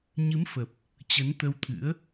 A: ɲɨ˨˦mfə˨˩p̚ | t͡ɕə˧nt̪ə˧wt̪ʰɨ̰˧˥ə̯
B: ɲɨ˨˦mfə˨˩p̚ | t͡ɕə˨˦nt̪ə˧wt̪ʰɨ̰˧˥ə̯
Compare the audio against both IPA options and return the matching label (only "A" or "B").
B